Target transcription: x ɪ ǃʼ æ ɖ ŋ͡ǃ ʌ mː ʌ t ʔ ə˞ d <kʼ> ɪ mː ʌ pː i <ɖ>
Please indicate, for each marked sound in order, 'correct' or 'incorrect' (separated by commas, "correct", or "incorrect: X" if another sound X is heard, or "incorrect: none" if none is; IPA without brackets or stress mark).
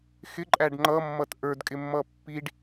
correct, correct